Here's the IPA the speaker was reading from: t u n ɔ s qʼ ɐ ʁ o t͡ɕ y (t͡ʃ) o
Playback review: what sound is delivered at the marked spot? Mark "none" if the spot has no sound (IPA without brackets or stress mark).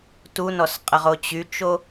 t͡ʃ